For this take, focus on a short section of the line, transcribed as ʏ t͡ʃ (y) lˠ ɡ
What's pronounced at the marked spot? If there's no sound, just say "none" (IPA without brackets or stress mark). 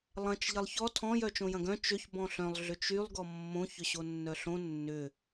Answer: y